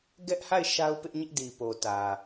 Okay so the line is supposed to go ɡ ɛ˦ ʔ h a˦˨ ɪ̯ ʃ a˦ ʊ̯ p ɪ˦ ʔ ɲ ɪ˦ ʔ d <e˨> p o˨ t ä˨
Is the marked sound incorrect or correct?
incorrect